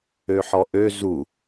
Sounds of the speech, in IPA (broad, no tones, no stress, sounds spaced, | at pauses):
ø ħ ɔ ʔ ø z u